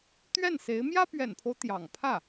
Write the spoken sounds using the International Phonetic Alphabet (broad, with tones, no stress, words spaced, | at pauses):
t̪ɥɛ˥˩nse˧˥ɪ̯ mjä˥pɥɛ̰˨˩npʰo˦ʊ̯ t̪jɑ̰˨˩ŋpʰä˥˩